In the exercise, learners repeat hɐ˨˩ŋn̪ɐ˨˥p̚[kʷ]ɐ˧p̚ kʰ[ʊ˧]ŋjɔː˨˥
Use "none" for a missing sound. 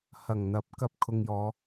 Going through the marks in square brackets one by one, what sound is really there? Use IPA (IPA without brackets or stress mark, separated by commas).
k, ʊ˧